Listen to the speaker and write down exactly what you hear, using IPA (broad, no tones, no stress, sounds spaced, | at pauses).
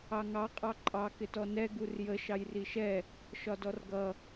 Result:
ɑ ŋ ɑ qʼ ɑ ǃʼ ɑ k ɪ t ɔ n ɛ ɡ u r j ə ʃ ɑ j r i ʃ ɛ | ʃ ɒ d ɔ r ɡ ʌ